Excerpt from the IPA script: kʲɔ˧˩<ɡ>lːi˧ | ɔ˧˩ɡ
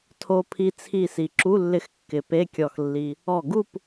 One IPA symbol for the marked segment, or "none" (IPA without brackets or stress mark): x